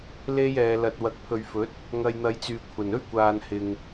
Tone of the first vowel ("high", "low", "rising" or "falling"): high